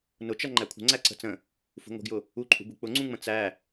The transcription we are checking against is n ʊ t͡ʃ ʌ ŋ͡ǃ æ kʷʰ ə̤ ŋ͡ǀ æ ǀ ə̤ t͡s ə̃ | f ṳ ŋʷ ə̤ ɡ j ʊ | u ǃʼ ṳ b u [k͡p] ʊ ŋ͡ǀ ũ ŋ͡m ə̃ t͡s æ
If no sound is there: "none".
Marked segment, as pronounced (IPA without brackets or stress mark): k͡p